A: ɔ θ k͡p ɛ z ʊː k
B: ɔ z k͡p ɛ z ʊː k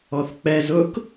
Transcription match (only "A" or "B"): A